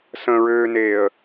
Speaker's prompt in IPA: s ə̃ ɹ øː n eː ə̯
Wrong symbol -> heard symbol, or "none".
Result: none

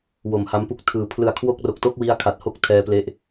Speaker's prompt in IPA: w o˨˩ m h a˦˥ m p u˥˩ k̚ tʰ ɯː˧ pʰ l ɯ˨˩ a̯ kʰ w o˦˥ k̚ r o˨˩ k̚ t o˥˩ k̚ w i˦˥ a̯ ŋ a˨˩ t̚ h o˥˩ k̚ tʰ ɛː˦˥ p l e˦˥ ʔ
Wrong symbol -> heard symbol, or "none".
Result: ŋ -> kʰ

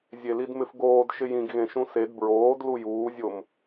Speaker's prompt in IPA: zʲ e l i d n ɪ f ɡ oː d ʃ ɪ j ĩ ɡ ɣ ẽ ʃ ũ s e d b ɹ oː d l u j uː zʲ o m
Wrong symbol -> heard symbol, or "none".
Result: n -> m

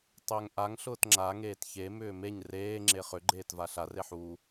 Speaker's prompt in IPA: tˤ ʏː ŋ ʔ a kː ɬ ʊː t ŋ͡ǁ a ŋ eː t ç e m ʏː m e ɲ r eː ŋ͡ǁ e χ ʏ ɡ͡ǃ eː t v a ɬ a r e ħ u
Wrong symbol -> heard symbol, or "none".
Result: kː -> ŋ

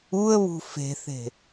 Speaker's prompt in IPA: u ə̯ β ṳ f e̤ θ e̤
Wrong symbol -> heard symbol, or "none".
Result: none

